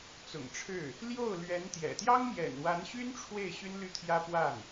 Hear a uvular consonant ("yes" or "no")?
no